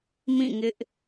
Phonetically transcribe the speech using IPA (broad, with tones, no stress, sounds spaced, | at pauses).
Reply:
m ĩ˦˨ ŋ ɪ˦ ʔ